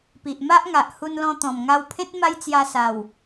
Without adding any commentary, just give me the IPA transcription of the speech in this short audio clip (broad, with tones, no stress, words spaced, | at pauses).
pi˨ʔma˦ʔŋa˨ʔhu˧n lɔ̃˧t̪ɔ̃˨˩mŋa˧wpʰẽ˦t̚ ma˦jt͡sja˧sa˨˩w